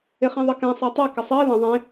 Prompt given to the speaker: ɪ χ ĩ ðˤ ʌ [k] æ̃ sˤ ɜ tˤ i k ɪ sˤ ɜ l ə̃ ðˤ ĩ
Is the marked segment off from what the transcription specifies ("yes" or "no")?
no